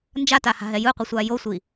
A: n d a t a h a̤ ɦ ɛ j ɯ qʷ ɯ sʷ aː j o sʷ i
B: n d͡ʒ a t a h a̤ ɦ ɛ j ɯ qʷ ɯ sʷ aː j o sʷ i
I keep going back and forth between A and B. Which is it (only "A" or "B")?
B